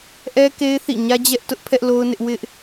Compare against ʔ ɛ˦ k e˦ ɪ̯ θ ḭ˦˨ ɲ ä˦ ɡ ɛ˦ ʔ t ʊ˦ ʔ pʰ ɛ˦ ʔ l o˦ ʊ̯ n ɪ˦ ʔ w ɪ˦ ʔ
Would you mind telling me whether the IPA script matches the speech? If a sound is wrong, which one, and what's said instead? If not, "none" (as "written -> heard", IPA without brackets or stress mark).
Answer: ɡ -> d͡ʑ